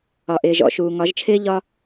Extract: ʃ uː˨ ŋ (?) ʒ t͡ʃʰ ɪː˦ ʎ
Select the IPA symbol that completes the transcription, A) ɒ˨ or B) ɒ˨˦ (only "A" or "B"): B